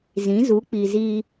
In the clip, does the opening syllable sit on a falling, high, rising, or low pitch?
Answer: rising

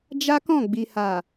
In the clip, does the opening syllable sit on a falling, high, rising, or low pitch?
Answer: high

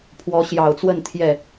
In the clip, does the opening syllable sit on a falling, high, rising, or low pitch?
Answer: rising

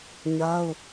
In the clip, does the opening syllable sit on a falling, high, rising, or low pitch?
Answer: high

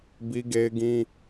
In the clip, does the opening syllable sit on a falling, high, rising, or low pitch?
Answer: high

